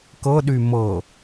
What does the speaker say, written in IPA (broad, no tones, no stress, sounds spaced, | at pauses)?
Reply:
k ɤ ɗ y m ɤ